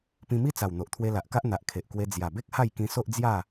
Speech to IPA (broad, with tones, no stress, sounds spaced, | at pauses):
p ĩ˧ m i˦ t͡s a˨˩ w n̪ o˨ ʔ t̪ʰ w e˧ l a˨ ʔ k a˦ ʔ n̪ a˨ ʔ kʰ e˨ ʔ k w e˧ d͡z j a˨˩ b e˦ k̚ h a˥˧ j k ĩ˧ s o˦ ʔ d͡z j a˥˧